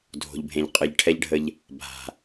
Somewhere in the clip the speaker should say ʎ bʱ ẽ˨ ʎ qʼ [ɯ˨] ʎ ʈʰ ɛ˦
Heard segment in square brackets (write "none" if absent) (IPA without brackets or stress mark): ɯ˨